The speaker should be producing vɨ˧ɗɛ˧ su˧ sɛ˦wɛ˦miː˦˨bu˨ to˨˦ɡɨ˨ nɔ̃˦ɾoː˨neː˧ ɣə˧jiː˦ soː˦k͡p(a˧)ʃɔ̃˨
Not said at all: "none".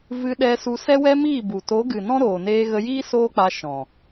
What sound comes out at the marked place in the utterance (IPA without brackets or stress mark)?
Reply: a˧